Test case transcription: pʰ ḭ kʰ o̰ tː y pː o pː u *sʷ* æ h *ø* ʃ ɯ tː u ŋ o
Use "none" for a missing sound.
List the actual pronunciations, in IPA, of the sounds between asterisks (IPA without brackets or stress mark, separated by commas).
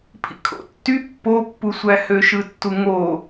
sʷ, ø